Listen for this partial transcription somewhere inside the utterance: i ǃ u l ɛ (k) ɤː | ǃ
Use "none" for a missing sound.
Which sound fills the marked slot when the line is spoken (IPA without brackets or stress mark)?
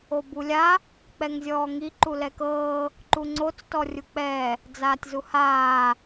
k